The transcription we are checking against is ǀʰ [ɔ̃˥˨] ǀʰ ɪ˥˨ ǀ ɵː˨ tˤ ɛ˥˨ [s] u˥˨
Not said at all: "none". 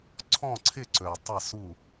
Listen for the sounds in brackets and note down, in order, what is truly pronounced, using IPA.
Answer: ɔ̃˥˨, s

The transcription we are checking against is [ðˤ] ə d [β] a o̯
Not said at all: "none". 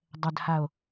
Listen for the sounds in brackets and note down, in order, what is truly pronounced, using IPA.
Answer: dˤ, h

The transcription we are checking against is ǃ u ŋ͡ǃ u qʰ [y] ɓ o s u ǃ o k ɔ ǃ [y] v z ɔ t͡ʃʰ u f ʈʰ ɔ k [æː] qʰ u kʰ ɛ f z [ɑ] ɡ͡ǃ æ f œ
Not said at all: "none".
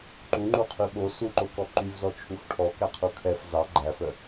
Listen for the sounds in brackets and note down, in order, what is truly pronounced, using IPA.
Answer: y, y, æ, ɑ

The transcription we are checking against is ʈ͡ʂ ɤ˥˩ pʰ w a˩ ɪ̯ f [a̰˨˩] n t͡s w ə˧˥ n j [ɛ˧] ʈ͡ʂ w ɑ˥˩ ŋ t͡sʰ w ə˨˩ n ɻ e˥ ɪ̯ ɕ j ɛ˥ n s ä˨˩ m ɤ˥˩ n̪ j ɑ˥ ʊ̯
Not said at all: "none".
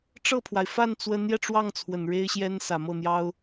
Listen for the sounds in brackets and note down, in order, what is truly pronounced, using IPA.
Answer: a˥˩, ɛ˧

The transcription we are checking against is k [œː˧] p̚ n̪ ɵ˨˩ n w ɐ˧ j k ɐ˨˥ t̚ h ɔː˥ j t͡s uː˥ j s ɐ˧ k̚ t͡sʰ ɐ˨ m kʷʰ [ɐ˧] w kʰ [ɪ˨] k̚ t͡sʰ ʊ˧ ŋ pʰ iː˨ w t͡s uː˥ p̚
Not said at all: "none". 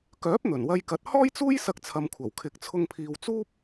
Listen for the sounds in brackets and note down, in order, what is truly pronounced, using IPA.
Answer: œː˨˥, ɐ˨˩, ɪ˨

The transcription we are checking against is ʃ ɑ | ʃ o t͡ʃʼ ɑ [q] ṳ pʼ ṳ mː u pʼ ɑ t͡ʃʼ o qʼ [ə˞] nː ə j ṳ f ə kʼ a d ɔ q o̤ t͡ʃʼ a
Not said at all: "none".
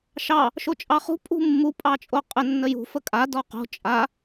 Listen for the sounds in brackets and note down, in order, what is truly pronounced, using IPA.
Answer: χ, ə

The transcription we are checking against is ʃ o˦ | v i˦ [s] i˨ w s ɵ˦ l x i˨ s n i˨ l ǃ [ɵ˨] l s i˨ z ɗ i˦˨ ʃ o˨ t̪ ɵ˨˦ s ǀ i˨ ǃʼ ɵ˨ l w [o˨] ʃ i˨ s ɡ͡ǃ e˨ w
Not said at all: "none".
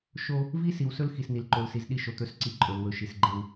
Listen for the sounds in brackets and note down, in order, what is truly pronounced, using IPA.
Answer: s, o˨, ɵ˨

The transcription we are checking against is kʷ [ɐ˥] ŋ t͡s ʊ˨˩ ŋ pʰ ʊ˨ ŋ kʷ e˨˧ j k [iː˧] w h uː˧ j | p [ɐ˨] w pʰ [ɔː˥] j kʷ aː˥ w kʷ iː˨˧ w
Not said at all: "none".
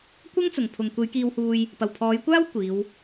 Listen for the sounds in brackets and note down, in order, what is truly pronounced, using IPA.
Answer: ɐ˥, iː˧, ɐ˨˩, ɔː˨˧

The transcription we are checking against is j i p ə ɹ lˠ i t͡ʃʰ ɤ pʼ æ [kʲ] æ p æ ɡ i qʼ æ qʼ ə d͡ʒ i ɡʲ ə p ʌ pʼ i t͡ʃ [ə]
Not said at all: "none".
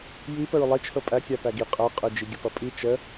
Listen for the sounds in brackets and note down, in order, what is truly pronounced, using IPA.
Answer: kʲ, ə

